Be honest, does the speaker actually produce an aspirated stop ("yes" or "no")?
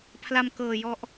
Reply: yes